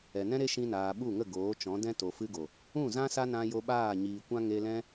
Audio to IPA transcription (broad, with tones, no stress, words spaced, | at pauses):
ɛ˨nɛ̃˦ɾe˦ ʃĩ˧naː˨ɓu˦˨ŋə˦˨ ɡoː˨˦t͡ʃɔ̃˨˦ dɛ̃˦ to˨fɨ˧ɡo˨ | ũ˦˨zã˦ sa˦nã˧ jo˧ɓaː˦˨ɲiː˨kʷã˦ ŋe˧lɛ̃˦